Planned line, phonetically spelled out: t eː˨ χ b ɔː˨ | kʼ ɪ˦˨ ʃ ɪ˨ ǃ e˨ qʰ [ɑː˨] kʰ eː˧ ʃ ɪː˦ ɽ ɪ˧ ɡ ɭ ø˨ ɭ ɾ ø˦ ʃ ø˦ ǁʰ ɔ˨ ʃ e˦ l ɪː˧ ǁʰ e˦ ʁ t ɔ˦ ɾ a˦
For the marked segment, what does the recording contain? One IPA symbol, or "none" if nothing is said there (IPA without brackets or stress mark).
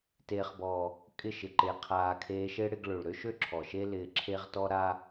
aː˨